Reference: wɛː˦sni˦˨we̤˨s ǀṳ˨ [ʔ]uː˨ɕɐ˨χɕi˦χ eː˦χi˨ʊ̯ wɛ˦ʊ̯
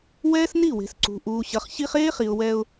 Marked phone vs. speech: correct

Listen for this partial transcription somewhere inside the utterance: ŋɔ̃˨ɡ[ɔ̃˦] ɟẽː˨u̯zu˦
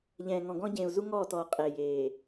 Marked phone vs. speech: correct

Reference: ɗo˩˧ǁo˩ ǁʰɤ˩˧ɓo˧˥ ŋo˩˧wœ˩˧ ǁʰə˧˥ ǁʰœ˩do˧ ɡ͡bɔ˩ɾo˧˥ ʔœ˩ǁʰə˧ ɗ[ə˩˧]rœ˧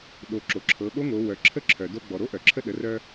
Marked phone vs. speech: correct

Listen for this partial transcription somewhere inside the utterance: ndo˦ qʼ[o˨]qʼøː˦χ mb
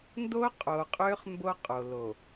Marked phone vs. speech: correct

